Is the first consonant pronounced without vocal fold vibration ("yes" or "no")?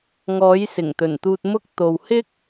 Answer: no